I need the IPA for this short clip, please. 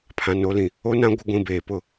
pʰ ã˨ n o˨˦ l ĩ˨ | o˦ n ã˦ ɡʷ ɪ˦ ɡʷ ĩ˨ b eː˨ p ʊ˦˨

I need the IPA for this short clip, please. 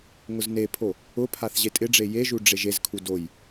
ŋ ʊ z n e pʰ o | ʊ pʰ a θ ʑ e tʼ ɪ ɖ͡ʐ e j e ʒ u ɖ͡ʐ e ʒ e z kʰ u d o j

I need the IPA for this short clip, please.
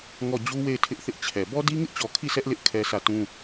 ŋ ɔ˦˨ d͡ʑ u˦ w e˦˨ ɪ̯ tʰ ɪ˦ ʔ θ ɪ˦ ʔ t͡ɕʰ ɛ˨ b ɔ˦ d i˦ ŋ ɪ˦ ʔ t͡ɕ ɔ˨ kʰ i˦˨ sʰ ɛ˦ ʔ l ɪ˦ ʔ kʰ ɛ˦ s ä˦˨ t ũ˦

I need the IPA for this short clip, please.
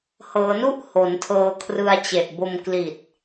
h ɤː˩˦ n u˥˩ ʔ h o˩˦ n tʰ ɤː˧ kʰ r ɯ˧ a̯ t͡ɕ e˨˩ ʔ b o˧ m k l i˨˩ t̚

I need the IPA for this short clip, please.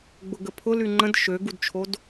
ɡ͡b ʊ ɡ ə pʰ ʊ l y ŋ͡ǃ ə̃ d ʃ ø ɡ u d t͡ʃʰ o d

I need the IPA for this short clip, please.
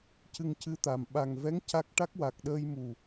c ɨ˧ ŋ c ɨ˧ t̪ a˨˩ m ɓ a˨˩ ŋ v ɛ˧˥ ŋ c a˦˥ k̚ ʈ a˦˥ k̚ w a˨˩ k̚ ɗ əː˧ j m u˨˩

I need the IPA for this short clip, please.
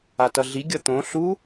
a t ʌ ɮ i ɡʲ ʌ t̪ õ ɬ u

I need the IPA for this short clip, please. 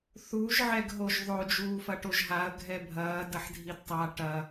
θ u ʒ ʕ ɛ ɡ ɦ o ʒ ðˤ o d͡ʒ uː f ɐ ʈ o ʒ ɦ a ɐ̯ ɡʱ ɛ bʱ ɐː d ɐ ħ dʱ i d tˤ a ʈ ɐ

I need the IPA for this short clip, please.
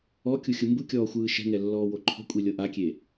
ɔ kʲ u xʲ ɯ m b ɯ kʲ ɔː xʷ ɯː ʃ ɛ̤ ŋ ɛ lː ɔː w o ǃʰ ɔ̤ kʷʼ i lʲ ɤ ʔ a kʲ e

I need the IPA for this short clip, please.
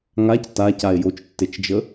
ŋ a c t a c a e̯ j o t͡ʃ tː e t͡ʃ d͡ʒ ə

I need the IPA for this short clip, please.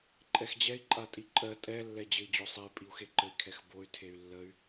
ǃʼ ɛ x d͡ʑ ɛ i̯ ǃʼ a tʼ i ǃʼ ɜ tʼ ɛ lː ɛ d͡ʑ ɘ i̯ d͡ʑ o sˤ ɛ y̯ pʼ i u̯ x e ǃ ɘ i̯ kʰ ɛ x b o y̯ tʰ e y̯ lː ə y̯

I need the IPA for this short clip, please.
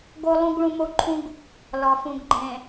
ɡ o˦ lˠ ũ˦ ɡ ɭ ũ˦ m o˦ ǃʰ ũ˦ ɡ | l ɒ˨ f ũ˨ ɡ ɡ͡ǃ ẽ˨

